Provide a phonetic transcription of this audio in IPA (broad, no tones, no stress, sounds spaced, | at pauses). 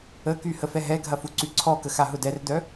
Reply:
ə k y h ə f ɛ ɦ ɛ ɡʱ ɐ f u ǀ y ǀʰ ɔ k ə x a ɦ ʊ d ɛ r d œ